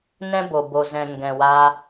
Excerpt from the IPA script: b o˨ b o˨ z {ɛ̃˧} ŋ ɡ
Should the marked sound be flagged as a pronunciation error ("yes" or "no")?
yes